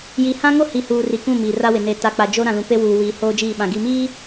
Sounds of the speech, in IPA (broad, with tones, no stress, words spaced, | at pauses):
ji˨ hã˦ŋo˦hi˨huː˨ ri˨kũ˦˨ miː˨ra˦wɪ˨ ne˨ta˨k͡pa˨ d͡ʒoː˦ ɾã˨lũ˨pe˦ wuː˨ wiː˨hoː˦d͡ʒiː˦˨ɓã˨ ɡi˨miː˦